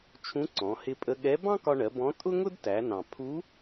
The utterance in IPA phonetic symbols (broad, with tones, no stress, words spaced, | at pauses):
t͡ʃʰũ˧˥ǀɔ̃˩˧ hɪ˧pʼə˧ɠɛ˧˥ bɑ̃˥kɒ˧ɳɜ˩˧ bɔ̃˧˥ tʼʊ˥ŋʊ˥d tæ˩˧nɑ̃˩ pʰu˧˥